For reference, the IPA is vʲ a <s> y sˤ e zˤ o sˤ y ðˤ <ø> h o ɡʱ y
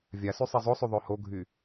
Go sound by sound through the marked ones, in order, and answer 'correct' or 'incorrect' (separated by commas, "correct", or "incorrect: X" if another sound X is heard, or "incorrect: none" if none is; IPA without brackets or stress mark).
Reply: correct, correct